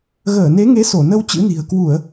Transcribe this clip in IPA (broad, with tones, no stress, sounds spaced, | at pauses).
ɣ əː˧˩ n e˨˦ ŋ e˨˦ s o˧˩ n ə˧ w t͡ɕ ɨ̰˧˥ n i̤˨˩ ə̯ k w u˧˩˨ ə̯